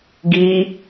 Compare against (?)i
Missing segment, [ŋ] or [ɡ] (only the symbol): ɡ